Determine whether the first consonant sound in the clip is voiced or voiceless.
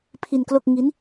voiceless